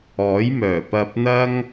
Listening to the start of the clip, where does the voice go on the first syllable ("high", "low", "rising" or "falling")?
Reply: rising